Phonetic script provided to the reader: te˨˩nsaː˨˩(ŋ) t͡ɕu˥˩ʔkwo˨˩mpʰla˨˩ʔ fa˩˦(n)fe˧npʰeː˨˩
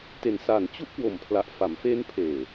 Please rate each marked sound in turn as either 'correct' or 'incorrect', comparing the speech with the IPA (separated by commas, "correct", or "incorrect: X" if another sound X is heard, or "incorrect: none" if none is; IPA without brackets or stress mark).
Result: incorrect: n, incorrect: m